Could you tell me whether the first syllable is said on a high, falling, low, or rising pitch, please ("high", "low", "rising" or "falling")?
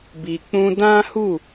low